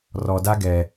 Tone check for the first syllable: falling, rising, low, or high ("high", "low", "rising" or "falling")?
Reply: low